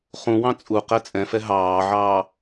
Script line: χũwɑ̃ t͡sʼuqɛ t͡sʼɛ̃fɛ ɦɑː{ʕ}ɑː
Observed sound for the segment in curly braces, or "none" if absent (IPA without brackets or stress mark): ʕ